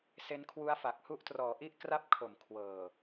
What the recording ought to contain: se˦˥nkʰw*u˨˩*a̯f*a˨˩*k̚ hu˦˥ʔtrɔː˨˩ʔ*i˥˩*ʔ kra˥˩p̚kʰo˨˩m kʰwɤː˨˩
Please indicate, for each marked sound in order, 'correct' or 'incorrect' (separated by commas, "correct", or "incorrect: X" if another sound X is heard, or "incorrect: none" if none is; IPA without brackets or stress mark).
incorrect: u˦˥, correct, correct